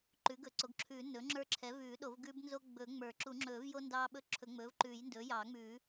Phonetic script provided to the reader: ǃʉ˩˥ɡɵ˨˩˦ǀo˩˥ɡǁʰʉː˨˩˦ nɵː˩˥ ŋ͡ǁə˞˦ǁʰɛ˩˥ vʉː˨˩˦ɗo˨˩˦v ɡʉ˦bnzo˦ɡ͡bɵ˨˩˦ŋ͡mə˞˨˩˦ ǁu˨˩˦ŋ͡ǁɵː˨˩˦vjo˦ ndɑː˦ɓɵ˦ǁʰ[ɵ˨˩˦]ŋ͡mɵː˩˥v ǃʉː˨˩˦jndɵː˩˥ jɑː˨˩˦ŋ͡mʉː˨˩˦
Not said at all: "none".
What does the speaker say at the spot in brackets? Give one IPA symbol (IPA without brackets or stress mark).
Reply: ɵ˨˩˦